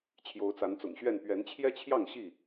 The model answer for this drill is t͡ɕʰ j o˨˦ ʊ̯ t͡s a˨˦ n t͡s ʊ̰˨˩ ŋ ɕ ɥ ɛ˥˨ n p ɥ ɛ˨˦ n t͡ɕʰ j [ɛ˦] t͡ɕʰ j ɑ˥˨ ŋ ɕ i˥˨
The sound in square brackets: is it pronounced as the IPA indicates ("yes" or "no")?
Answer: yes